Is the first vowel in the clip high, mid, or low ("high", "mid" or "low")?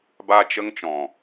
low